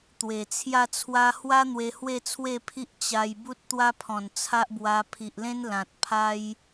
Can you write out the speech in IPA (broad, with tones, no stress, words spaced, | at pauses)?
t̪we˨˩ t͡sʰja˥˧t͡sʰwa˦ hwa˦ n̪we˧hwe˥˧t͡sʰwe˥˧pʰi˦ʔ t͡ɕa˧j bu˦t̚t̪wa˦pʰɔ̃˨˩n t͡sʰa˦ʔbwa˧ pʰi˨ʔlẽ˦n lã˨t̚ pʰa˦j